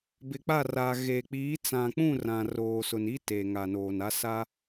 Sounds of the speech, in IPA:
b ɪ˨ k͡p a˦˨ r a˨ ɣ eː˨ k͡p iː˨˦ t͡s ã˨ k͡p ũ˦˨ r ã˨ r oː˨ s ʊ˨ n i˦ t eː˨ ŋ a˨ n oː˨ n a˦ s a˦

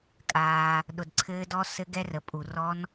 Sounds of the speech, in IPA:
kʼ aː˨ | ɗ ʊ˨ d ǀʰ ɘː˦˥ d ɔ˦˥ s ɘ˦˥ ɡ ɛ˦˥ r ə˨ pʼ u˨ r ɔ˦˥ n

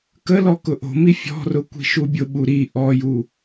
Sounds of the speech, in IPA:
k ə l ɔ k ʊ ʔ o̤ m i fʲ ɔ̤ r ʊ kʷ i̤ ʃ u bʲ ʊ ɓ u ɾ i ʔ ɔ j u

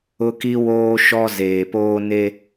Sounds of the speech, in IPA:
ʊ˦ k i˦ w oː˦ ʃ ɔ˦ z eː˨ p oː˦ n e˦

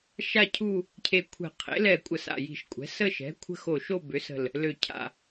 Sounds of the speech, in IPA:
ʃ a˥˧ cʰ u˥˧ | cʰ e˧˩ kʷʰ ɛ̤˧˩ qʰ ḛ˩˥ l ɛ˧˩ kʷʼ ə˧˩ s a̰˧˩ j i̤˧˩ ʃ kʷʼ ɛ̤˩˥ s ə˥˧ ʃ ɛ̤˩˥ kʷʰ ə̤˥˧ x o˧˩ ʃ o˥˧ b ʏ˩˥ s ə̤˧˩ l | l ø˧˩ cʰ a̰˧˩

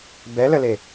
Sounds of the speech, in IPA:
b ɛ l ə l e

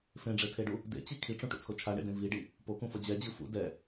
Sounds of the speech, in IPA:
f ẽ ɖ͡ʐ e tʰ e ɖ u | d ḛ t͡ɕ i kʰ i ʈ͡ʂ ũ ʈ ṵ t͡sʰ o t͡ʃʰ a ɳ ḛ d ẽ v i ɖ i | p o k ũ f ʌ d͡ʑ ɛ d͡ʑ ɯ f ṵ d ɛ

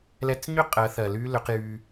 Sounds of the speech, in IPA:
l ɛ˧˥ t͡s ɲ ʏ˥ qʼ ɜ˩˧ θ ɜ˩ l y˧ l ʏ˩˧ q j y˧

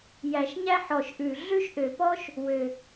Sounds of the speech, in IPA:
j æ˨˩ ʃ ɲ æ˥ ħ ɔ˨˩ ʃ ʔ ʉ˨˩ ɮ ʉ˥ ʃ ʔ ø˨˩ p ɔ˥ ʃ | w ø˨˩

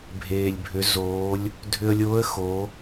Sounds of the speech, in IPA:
bʱ eː˩ lʲ bʱ ʏ˩˧ z oː˩˧ lʲ | dʱ ʏ˧ ə̯ lʲ oː˧˥ ə̯ x o˩˧

